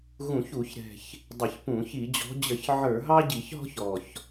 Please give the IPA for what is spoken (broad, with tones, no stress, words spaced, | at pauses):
ɣũ˧˩˧çu˧˩˧çɾɛ̤˨˩ç | dˤɪ˧˩˧çpũ˧˩˧ çi˧˩˧d͡ʑɔ̤˨˦d͡ʑə˧˩˧ç ʕə˞˧˩˧ɦɑ˦ ɟi˧˩˧çɦɔ̤˦ç ɔ˨˩ç